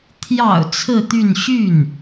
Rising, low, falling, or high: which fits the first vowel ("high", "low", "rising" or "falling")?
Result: low